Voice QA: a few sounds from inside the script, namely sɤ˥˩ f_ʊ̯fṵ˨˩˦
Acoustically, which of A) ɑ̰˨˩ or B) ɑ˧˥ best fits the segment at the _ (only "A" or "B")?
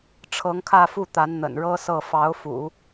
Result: B